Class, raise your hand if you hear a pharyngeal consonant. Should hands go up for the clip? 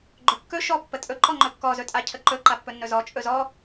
no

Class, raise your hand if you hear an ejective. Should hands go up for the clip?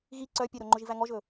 no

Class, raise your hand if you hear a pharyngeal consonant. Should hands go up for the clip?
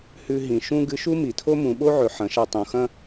yes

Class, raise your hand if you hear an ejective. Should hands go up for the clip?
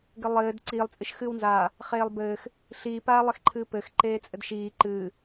yes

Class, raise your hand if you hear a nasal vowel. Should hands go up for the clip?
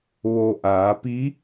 no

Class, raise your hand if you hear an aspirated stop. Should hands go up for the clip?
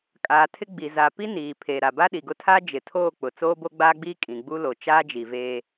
yes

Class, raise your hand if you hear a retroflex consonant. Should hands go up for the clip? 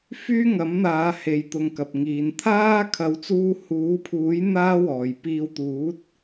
no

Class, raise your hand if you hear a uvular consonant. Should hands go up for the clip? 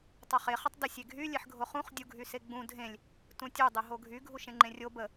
yes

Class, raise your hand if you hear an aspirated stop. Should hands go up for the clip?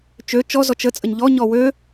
no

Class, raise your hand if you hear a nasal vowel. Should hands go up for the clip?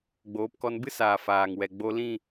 yes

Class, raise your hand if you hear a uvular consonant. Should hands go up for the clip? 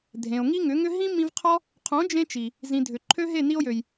yes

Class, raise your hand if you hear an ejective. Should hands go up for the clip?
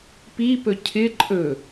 yes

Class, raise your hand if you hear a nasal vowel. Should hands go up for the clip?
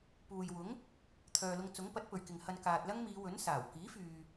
no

